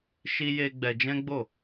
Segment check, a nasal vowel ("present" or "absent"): present